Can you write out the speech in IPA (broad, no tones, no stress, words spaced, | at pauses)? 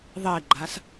ðˤeɡ͡ǃas